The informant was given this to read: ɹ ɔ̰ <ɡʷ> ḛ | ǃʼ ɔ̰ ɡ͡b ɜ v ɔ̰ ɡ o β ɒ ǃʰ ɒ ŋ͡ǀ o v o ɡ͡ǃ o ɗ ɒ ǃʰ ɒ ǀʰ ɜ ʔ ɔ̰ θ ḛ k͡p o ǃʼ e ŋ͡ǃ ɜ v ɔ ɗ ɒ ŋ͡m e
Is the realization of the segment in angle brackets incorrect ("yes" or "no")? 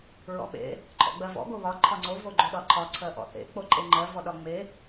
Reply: yes